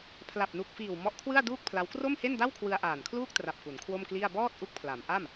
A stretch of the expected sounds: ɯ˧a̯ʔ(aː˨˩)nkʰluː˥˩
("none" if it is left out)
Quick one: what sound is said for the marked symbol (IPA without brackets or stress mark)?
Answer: aː˨˩